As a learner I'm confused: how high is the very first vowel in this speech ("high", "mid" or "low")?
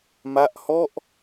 low